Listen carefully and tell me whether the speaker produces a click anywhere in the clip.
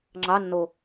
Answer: yes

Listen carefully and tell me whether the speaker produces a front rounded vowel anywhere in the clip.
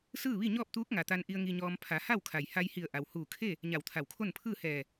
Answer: no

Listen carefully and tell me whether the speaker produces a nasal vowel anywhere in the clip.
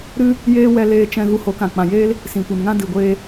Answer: yes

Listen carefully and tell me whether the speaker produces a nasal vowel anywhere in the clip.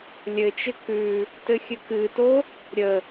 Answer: no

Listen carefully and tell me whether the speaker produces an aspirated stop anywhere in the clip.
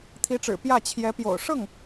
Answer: yes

